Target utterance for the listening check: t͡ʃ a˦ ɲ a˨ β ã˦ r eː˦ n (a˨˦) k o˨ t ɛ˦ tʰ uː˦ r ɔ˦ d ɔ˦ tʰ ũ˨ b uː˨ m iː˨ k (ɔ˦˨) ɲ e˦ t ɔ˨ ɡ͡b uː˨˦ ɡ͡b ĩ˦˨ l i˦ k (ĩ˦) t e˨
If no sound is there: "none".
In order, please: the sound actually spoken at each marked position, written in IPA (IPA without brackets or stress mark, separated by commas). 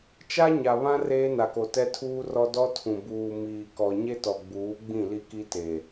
a˨, ɔ˨, i˦